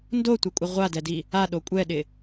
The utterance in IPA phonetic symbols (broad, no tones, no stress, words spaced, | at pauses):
ndotʷɪkʷʼɪ ʁʷadɛdi | aɗo kʷʼɛɗɪ